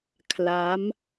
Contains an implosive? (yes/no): no